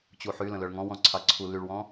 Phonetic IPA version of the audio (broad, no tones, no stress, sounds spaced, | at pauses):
t͡ɕ u ħ y l ə̃ l œ ɭ ŋ ɔ̃ w ɔ̃ ǀʰ ɑ ǀʰ u l y ɭ w ɔ̃